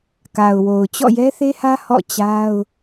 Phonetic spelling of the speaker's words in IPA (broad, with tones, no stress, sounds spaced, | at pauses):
k a˨ ʊ̯ w o˨ ʊ̯ t͡ɕ ɔ̰˦˨ j ɛ˦ θ e˦ h ä˦ h ɔ̰˦˨ t͡ɕ a˦ ʊ̯